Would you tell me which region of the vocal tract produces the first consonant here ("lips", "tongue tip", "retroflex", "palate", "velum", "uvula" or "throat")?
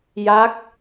palate